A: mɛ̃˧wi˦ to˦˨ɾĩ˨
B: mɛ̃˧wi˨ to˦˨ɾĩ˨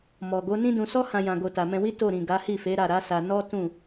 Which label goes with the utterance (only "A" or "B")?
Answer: A